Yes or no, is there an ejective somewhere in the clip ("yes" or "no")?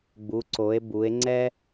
no